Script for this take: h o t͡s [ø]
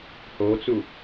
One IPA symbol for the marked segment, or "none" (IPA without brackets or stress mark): u